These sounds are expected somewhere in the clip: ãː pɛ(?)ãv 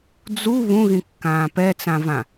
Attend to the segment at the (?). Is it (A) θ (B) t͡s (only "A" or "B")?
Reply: B